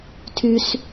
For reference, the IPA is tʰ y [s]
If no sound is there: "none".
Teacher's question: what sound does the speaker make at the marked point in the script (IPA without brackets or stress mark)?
s